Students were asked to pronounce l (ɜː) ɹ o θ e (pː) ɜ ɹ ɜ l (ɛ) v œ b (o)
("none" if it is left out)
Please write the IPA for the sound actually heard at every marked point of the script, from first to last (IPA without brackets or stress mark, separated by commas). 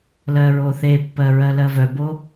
ɜ, pː, ɜ, o